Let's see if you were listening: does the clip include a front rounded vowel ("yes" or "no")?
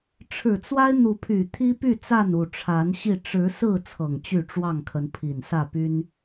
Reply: yes